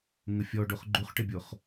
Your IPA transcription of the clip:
ŋəfʲɔɖoχ ɡ͡ǃuχʈɪbʲoχ

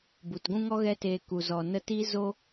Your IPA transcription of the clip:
bu˨tɡʷũ˦ŋɔ˦ ɣɛ˦teː˧ ku˨zɔ˨nə˧ti˦ zo˦

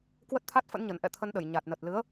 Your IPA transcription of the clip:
kwə˦˥t̚t̪ʰa˦˥t̚fə̰˧˥nɲə˧˩n ʔɛ̰˧˨t̪ʰə˧nɗə˧˩j ɲa˨˩t̚nə˨˩t̚lɨ˨˦ə̯

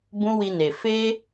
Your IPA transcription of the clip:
bũ˦wi˧ne˨ fe˧

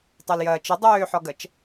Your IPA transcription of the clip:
tˤɛljɐːt͡ʃɪ dˤøːħɔɡɐt͡ʃ

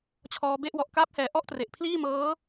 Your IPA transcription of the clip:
t͡ɕʰɔː˧be˥˩ʔ wɔ˨˩ʔkaː˦˥p̚hɛː˨˩ ʔɔ˥˩ʔtre˨˩ʔ pʰliː˥˩mɤː˦˥

